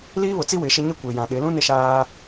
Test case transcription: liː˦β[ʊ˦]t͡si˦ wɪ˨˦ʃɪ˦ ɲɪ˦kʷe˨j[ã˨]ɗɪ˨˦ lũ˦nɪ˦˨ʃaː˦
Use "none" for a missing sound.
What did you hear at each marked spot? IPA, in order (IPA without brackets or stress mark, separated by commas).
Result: ʊ˨, ã˨